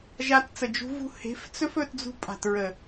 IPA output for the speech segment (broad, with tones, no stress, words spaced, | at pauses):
ʒa˧tt͡sə˨d͡ʒṳ˧ vṳ˧he̤˨˦ft͡sɵ˦fɵ˧t d͡zṳ˧pʼa̤˨tɹə˨